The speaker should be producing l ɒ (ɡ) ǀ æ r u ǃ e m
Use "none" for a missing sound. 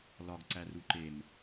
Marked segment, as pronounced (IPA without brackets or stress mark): ɡ